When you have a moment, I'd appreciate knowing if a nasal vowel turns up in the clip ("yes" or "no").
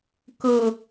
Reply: no